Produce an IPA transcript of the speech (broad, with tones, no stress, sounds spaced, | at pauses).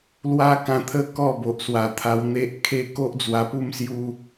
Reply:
l w a˦ k ã˧ t̪ʰ ə˦ k ɔ˥˧ b o˨ ʔ s w a˨˩ t̪ʰ a˧ w n̪ e˦ ʔ kʰ e˦ k o˦ ʔ d͡z w a˧ p u˥˧ m s j u˦